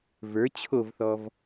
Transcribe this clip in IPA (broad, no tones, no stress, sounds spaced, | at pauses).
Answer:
v ə˞ t͡ɕʰ o v θ ɔ v